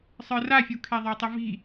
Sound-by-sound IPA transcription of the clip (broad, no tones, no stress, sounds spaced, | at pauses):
sˤ ə˞ r a fʲ u kʰ e ðˤ ə˞ tˤ ɨ v i̤